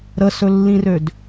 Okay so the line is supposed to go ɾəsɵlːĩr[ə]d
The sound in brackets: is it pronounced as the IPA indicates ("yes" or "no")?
no